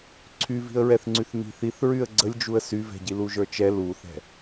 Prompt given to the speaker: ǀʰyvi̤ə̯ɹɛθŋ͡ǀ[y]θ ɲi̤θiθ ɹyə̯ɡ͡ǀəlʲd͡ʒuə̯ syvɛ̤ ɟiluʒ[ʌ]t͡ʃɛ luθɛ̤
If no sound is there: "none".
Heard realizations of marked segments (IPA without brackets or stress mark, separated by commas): y, ə˞